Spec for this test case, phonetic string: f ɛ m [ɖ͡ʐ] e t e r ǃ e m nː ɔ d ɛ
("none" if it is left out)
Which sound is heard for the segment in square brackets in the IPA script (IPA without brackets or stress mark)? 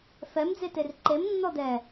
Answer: d͡z